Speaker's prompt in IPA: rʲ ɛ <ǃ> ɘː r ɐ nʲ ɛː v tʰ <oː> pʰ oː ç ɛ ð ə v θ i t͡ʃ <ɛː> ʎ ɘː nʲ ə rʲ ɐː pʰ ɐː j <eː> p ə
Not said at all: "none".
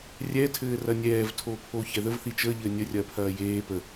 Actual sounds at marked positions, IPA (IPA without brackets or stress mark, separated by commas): tʰ, oː, əː, eː